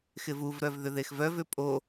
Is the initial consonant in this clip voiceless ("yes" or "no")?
yes